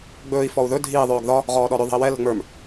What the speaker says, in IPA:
ɡ͡bɵːi̯ fɔu̯ðɵ dʱiːðˤɵːɡ ðɒ | ʁɔːɗɔɾɵðˤə̤i̯ wɛ lə̤ŋ͡mə˞m

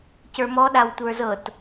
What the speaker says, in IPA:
cə˞mɔɗaw tʷə˞zɤt

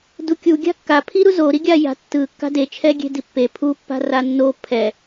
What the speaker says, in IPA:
dukʲu ɡʲa̤kːapʰiɾu zoɾiɡʲa ja̤tːɯ kːa̤det͡ʃʰɛɡʲe̤ dipːe pʰupːa̤ ranːo pʰɛ

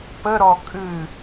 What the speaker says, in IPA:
pəɾɔ kʼɨ

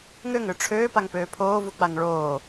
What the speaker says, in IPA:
ŋøŋø ʈ͡ʂʰøːpaŋpøː pʰoːvuk͡paŋ ɭoː

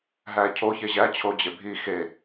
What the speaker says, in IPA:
ɦæcʰo çeʑæ t͡ɕʰod͡ʑebʱi xe

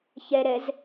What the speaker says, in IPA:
çɛɾɛz

